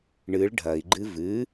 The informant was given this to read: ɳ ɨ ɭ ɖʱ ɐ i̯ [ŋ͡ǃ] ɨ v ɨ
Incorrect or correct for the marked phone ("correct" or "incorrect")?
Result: incorrect